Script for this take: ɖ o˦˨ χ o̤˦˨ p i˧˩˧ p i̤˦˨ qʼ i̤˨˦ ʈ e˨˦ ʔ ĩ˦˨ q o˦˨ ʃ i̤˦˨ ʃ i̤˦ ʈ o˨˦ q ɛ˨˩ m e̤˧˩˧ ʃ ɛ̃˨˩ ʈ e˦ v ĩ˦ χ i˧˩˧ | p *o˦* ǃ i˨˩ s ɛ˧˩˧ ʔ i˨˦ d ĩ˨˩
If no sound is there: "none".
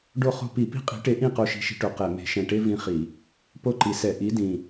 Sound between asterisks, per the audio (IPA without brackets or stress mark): o˦